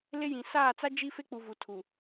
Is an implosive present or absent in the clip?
absent